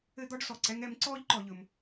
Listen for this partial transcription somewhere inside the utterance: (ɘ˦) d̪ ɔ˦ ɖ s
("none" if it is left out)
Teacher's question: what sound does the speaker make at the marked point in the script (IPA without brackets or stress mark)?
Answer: ɘ˦